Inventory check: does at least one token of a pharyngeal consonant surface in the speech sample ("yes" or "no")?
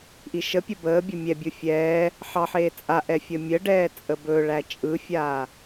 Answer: yes